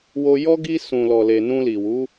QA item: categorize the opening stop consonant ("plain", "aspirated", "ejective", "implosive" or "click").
plain